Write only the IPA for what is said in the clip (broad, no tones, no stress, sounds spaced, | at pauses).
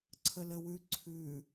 ǀʰ ə l ə w ʉ ǀʰ ʉ